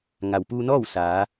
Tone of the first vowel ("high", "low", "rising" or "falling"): low